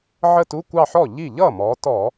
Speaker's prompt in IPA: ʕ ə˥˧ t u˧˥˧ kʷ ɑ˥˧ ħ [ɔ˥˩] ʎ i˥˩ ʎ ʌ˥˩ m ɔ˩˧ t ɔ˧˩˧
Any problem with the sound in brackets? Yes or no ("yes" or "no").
no